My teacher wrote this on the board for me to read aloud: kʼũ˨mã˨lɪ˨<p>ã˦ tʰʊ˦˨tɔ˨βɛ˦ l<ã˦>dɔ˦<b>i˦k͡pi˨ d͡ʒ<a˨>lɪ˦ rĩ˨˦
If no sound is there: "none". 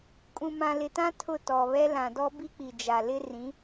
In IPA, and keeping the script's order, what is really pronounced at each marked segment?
t, ã˨, b, a˨

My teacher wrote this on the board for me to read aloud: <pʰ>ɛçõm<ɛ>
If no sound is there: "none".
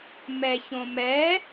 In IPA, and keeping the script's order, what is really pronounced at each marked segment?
m, ɛ

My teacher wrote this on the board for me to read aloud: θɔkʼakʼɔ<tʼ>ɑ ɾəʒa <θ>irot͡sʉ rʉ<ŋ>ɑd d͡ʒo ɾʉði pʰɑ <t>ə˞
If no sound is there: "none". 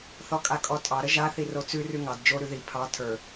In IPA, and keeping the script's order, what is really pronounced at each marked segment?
tʼ, θ, ŋ, tʰ

